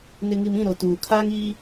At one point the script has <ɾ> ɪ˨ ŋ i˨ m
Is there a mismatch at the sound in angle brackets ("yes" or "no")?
yes